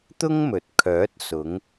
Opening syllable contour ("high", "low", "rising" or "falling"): high